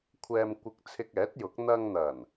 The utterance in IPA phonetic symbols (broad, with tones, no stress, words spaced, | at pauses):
kʷʰɛː˧m kʷɪ˧k̚ t͡sʰɪ˧k̚ɛː˨˥t̚jʊ˨˥k̚ n̪ɐ˧ŋn̪ɐ˨˩n